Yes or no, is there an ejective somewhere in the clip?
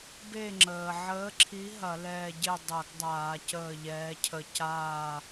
no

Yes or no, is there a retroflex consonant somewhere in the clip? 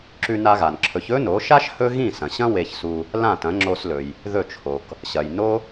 no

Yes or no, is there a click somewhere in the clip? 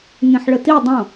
no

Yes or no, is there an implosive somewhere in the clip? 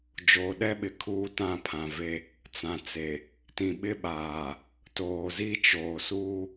yes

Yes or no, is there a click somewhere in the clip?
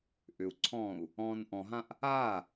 yes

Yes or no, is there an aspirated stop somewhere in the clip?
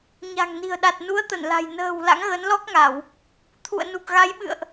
yes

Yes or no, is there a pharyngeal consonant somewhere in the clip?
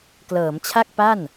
no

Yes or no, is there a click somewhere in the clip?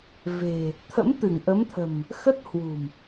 no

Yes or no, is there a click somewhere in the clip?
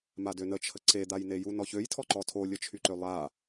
yes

